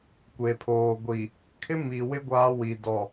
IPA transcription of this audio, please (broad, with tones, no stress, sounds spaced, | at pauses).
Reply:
kʷ e˨ pʰ oː˨ ɡʷ i˨ | kʰ ɪ˦ m i˨ w ɪ˦ ɡʷ aː˦ w i˨ d ɔ˨